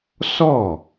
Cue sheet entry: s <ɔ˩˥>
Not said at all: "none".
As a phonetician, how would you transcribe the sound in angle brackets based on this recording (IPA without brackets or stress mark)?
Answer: ɔ˥˩